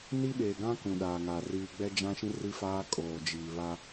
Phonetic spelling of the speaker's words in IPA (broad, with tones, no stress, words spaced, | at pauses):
ni˦ɓeː˨ɡã˦ kũ˨ɗaː˨ŋa˨ riː˨ɡ͡bɛ˦d͡ʒã˦ʃĩ˦ ri˦faː˦ kʼoː˨d͡ʒiː˨ βa˦